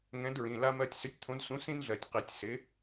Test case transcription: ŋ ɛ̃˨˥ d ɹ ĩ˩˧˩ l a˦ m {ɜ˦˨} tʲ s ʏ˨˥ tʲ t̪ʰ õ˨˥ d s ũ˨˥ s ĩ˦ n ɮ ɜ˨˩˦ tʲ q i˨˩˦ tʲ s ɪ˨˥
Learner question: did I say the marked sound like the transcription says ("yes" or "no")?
yes